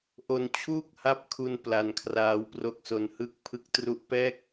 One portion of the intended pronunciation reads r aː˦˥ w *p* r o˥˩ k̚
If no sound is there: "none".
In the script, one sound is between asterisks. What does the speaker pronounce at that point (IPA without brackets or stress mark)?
p